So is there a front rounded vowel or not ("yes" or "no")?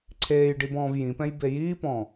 no